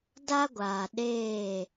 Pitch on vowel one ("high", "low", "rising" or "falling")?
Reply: high